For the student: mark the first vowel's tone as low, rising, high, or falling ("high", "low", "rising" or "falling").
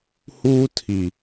high